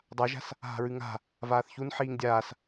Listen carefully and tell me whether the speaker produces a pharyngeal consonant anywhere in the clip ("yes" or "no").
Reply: yes